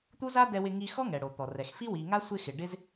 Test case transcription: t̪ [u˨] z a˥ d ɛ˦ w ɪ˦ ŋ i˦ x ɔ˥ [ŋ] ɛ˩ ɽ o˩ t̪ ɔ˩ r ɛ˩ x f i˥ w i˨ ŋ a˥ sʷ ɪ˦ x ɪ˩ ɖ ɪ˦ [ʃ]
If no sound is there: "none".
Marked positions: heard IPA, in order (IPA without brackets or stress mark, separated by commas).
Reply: u˥, ŋ, z